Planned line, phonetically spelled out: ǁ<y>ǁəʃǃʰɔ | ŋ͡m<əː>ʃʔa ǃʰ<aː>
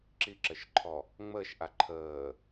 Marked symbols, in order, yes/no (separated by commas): no, yes, no